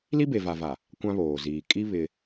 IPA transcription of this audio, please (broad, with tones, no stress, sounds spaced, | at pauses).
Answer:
l i˦ b e˨ v a˨ v a˨ | kʷ ã˦ β oː˨ z iː˨ kʼ i˦ β ɪ˦